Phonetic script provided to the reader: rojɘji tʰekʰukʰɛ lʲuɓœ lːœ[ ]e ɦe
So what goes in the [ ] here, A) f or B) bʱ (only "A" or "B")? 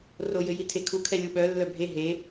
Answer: B